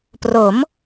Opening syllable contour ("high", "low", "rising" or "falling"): rising